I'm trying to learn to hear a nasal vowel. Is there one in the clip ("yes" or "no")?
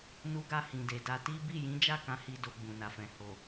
yes